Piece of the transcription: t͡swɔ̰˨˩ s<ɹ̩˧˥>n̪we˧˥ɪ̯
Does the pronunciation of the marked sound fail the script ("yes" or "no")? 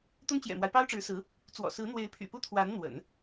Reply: no